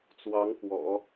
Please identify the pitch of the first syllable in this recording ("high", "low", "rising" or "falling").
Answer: rising